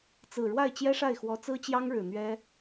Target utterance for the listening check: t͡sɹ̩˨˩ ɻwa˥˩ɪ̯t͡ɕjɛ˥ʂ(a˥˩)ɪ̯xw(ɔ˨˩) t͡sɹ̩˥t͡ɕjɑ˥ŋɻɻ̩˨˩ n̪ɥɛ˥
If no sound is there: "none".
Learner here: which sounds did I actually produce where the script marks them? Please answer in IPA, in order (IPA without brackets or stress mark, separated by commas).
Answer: a˥˩, ɔ˧˥